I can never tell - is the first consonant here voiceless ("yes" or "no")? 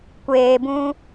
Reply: yes